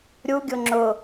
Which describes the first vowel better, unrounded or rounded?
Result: rounded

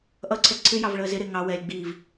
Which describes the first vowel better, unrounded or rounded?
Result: unrounded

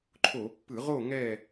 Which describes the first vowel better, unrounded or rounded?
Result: rounded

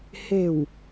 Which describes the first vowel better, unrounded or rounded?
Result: unrounded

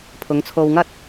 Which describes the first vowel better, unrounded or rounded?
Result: rounded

